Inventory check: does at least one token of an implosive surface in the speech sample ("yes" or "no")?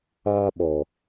yes